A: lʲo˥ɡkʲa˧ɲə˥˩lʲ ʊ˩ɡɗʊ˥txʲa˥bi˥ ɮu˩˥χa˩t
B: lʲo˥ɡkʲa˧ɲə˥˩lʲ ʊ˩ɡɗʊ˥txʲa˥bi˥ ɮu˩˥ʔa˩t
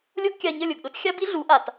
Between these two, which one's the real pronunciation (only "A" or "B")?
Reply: B